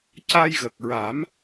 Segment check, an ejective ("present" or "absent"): absent